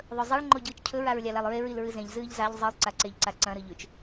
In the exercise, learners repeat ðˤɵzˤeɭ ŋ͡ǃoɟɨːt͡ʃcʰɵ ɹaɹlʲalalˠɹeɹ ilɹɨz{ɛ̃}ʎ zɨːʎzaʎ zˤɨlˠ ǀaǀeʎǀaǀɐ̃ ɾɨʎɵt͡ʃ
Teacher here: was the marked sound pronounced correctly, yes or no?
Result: no